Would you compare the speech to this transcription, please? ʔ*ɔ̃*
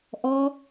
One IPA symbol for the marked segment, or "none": ɔ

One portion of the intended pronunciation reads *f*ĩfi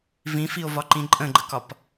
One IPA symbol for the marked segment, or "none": v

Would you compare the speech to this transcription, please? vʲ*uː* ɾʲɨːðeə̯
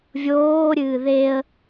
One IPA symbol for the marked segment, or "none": oː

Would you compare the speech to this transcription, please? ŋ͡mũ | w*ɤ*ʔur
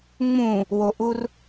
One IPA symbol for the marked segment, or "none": o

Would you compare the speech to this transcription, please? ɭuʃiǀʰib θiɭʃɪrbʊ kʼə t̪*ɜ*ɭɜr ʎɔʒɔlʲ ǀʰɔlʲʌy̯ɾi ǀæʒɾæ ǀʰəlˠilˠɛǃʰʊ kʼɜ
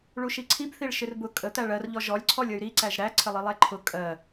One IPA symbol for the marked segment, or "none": æ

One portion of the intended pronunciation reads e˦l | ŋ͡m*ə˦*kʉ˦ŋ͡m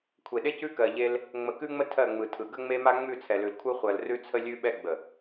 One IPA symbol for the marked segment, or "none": ə˨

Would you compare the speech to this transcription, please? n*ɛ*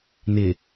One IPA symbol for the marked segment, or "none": ɪ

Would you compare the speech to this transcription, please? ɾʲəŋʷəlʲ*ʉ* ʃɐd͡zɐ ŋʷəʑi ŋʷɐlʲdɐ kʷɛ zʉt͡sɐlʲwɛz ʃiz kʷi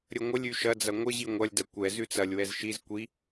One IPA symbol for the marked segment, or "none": ʉ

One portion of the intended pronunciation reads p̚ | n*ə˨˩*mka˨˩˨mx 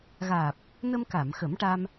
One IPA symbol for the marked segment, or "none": ə˧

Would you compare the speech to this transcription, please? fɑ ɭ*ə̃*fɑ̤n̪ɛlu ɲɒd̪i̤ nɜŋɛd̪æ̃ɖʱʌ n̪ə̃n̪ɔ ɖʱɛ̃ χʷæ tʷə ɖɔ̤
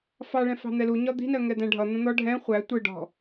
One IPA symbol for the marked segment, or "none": ɛ̃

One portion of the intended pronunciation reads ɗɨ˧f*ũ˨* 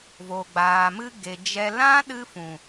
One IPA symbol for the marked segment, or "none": ũ˨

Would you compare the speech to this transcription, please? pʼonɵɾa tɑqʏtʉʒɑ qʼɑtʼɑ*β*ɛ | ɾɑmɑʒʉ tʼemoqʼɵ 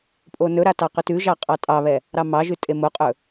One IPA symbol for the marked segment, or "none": β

